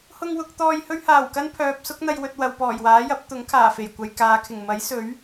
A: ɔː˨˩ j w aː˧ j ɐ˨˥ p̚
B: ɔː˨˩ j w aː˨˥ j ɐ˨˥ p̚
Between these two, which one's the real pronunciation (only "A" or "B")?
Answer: B